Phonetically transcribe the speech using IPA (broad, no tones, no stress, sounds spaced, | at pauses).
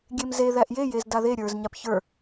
ɡʲ e m z e ð æ ʔ j e j e z d a ð e ɾʲ ə˞ z ɲ a p ç ə˞